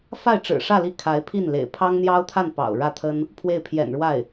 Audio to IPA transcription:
f a˥˩ ɪ̯ ʈ͡ʂ ɻ̩˨˩ ʂ ä˥˧ l i˥˩ kʰ a˧˥ ɪ̯ pʰ i˥˩ n l ḛ˨˩ ɪ̯ pʰ ɑ˥ ŋ n̪ j ɑ˥ ʊ̯ t̪ʰ a˥˩ n p ɑ̰˨˩ ʊ̯ ɻ ä˥˩ t̪ʰ ə˥ n | pʰ w e˥˩ ɪ̯ pʰ j ɛ̰˨˩ n ɻ w a˥˩ ɪ̯

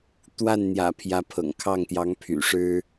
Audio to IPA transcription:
t̪ w a˥˩ n n̪ j ä̰˨˩ pʰ j ä˧˥ pʰ ɤ̰˨˩ ŋ kʰ ɑ˥˩ ŋ t̪ j ɑ˧˥ ŋ pʰ y̰˨˩ ʂ ɻ̩˥

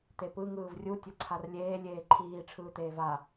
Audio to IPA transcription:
t̪ e p ɯ ŋ ɯː v rʲ u tʲ ʌ ǀʰ a r lʲ eː lʲ eː ǃʰ iː ʈ͡ʂʰ ɯː t̪ eː v a

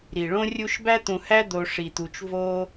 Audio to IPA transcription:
ɾ i˩ ɭ õ˥ rʲ u˦ ʃ b æ˦ t̪ ũ˨ h æ˦ d̪ o˨ ʂ i˩ t̪ u˨ t͡ʃ v o˦

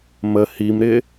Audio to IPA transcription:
m ə h i m ɾ ɪ

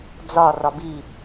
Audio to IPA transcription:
d͡z ɒ r ɒ b i

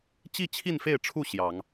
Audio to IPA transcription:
t͡ɕ i˥˨ t͡ɕʰ i˥˨ n f e˥˨ ɪ̯ ʈ͡ʂʰ u˥˨ ɕ j ɑ˨˦ ŋ

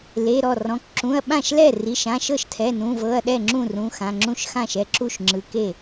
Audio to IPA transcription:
l e˩˧˩ ɾ ɔ˥˩ r ɔ̃˩˧˩ k ǁ ũ˩˧˩ ɐ̯ ɓ ã˥˩ ʃ l ɛ˥˩ r i˩˧˩ ʃ ã˩˧˩ ʃ ɤ˥˩ ʃ tʰ ɛ˩˧˩ n ũ˩˧˩ v ɤ˩˧˩ ɐ̯ ɗ ɛ˥˩ ŋ͡ǁ ũ˥˩ r ũ˩˧˩ x ã˩˧˩ ŋ͡ǁ ũ˥˩ ʃ x ã˥˩ ʃ ɛ˩˧˩ ǁ u˥˩ ʃ ŋ͡ǁ ɯ˩˧˩ k e˥˩

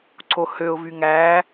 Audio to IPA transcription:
ǀ o h ø ʊ̯ v y ŋ æ

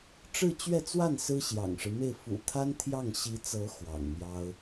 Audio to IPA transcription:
ʈ͡ʂ ɻ̩˥˧ t͡ɕ ɥ ɛ˥˧ t͡s w a˥˩ n s ɹ̩˥ ɕ j ɑ̰˨˩ ŋ ʂ ɻ̩˦ m e˥˩ ɪ̯ f ṵ˨˩ t̪ʰ a˥ n t̪ʰ j ɑ˥˩ ŋ ɕ i˧˥ t͡s ɤ˧˥ x w ɑ̰˨˩ ŋ m j ɑ˥ ʊ̯

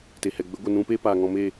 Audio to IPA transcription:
t e˨ h ɛ˨ ɡ͡b ə˨˦ ɡʷ ə˨ n ũ˧ p eː˦ p aː˨ ŋ ɔ̃˧ m eː˦˨

